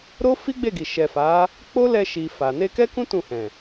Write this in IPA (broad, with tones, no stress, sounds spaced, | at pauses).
ɾ o˦ f i˦ ɡ͡b e˦˨ ɡ i˨ ʃ ɛ˨ f a˨˦ | k͡p o˦ l ɛ˧ ʃ i˨ f a˨ n e˧ k ɛ˦ k ũ˦ t ũ˦˨ h ɛ̃˨